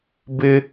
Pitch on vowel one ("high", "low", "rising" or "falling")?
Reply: high